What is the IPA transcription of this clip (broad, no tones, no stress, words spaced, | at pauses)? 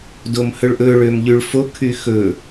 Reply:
domhɵɭʔɵ ɭømʎyɭfo kʰyxɵ